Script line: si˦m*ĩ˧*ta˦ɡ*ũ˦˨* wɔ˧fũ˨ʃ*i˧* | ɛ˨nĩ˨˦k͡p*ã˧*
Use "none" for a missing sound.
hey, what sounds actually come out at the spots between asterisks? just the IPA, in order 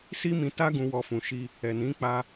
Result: ĩ˧, ũ˧, i˧, a˧

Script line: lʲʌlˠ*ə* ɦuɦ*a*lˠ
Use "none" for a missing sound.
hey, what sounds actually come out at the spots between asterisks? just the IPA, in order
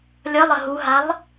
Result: ə, a

